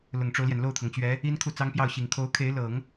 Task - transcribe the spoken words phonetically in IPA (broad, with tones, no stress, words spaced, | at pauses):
lʊ˨˩ŋʈ͡ʂo˦ʊ̯ljɛ˩n lo˥˩ʊ̯t̪ʰɤ˩ŋt͡ɕɥɛ˧˥ | i˥n kʰu˥˩t͡sɑ˥ŋpjɑ˥˩ʊ̯ɕi˨˩ŋ kʰo˧˥ʊ̯kʰe˧˥ɪ̯ lɤ˨˩˦ŋ